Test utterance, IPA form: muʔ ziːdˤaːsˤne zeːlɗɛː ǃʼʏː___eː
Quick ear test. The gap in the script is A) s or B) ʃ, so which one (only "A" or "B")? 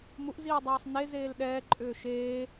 B